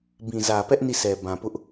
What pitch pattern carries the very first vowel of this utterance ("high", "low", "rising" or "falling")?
low